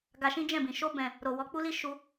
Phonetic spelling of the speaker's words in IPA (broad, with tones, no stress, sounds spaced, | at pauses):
ɡ a˧ ʃ ĩ˦ d͡ʒ ɛ̃˦˨ b ĩ˨ ʃ o˧ b ɛ̃˨ | ɾ o˨ w ɔ˨˦ k͡p u˦ l i˦ ʃ u˧